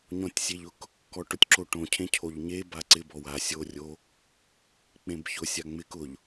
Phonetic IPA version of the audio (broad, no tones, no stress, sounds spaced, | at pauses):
ɲ ɔ̃ tʲ sʲ e ʎ ʊ k | k ɔ ʈ ʊ tʲ ǁ o ʈ õ cʰ ẽ cʰ o ʎ ɲ e b a ǀ ɪ b ɔ w a sʲ o rʲ o | k͡p ẽ b ç ʊ sʲ a ŋ͡m ɪ k ʊ ʎ